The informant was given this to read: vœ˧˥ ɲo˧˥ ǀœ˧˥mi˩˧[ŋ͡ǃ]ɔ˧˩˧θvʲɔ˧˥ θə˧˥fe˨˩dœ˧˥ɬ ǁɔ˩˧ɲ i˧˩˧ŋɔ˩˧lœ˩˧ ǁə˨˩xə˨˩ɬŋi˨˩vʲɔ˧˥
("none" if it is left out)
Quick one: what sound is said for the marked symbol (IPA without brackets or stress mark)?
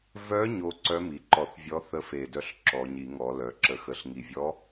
ǃ